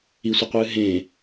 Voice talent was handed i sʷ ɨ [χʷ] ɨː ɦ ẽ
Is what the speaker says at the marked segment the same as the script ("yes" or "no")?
no